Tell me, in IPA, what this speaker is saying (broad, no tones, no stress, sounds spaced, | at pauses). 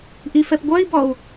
ʔ i f ɛ p ɡʷ œ i̯ b ɔ u̯